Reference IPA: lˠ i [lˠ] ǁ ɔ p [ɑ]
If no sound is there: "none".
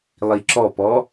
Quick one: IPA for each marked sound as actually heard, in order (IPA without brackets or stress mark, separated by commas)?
none, ɔ